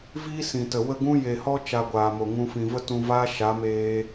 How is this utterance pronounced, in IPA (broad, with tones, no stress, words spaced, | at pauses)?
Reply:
viː˦sĩ˨tə˨ wə˦˨ɡũ˦ je˨hɔ˦ t͡ʃa˧ɡʷaː˨mo˨ŋũ˧ fĩ˨və˦tũ˧vaː˦ ʃa˨˦meː˧